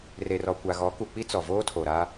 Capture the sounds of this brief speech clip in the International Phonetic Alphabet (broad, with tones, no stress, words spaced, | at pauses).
re˨rɔ˨ kʷa˨ɣɔ˨˦ ku˨k͡pi˦ t͡sɔ˨ voː˦tʰoː˨ɾa˦